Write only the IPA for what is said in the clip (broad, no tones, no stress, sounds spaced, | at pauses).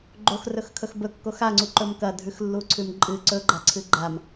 ɡ͡ǃ o x r ɵ x kʰ ɵ x b ɵ kː o x a ŋ͡ǀ u ǃ ɵ m k ɐ dʱ ʉ x lː u ǀʰ ʉ m ǃʼ ɨ ǀ ɵ ɡ͡ǃ a ǀʰ ɨ ɡ͡ǃ a m